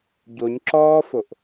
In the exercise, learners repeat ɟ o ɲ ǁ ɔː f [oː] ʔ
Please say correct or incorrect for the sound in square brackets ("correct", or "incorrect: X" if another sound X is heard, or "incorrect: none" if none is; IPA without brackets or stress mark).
incorrect: o